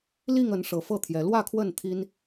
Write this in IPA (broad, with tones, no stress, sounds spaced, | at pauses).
l i˥˨ ŋ ə˨˦ n ʂ ɤ˨˦ f ɤ˥˨ t̪ʰ j ɛ˨˦ l w ä˥˨ kʰ w ə˥˨ n t̪ʰ i˦ n